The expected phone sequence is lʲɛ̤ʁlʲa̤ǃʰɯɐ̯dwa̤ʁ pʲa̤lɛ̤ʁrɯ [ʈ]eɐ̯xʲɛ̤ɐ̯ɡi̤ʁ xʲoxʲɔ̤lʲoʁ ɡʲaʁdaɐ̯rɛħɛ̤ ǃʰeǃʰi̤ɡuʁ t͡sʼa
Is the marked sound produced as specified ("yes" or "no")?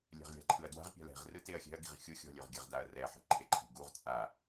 no